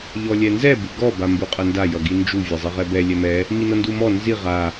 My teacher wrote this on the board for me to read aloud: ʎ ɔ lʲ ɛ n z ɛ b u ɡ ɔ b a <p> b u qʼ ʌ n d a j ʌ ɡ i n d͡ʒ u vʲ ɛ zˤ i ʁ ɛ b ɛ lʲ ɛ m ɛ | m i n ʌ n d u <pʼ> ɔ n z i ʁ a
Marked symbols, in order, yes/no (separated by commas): no, no